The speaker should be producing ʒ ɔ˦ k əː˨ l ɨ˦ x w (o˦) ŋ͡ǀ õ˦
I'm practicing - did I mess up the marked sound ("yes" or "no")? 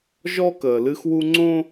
yes